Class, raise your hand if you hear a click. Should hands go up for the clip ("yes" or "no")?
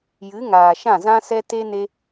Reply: no